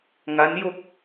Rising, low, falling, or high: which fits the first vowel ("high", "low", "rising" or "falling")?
rising